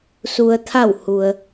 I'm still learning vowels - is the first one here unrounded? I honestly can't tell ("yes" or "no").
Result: no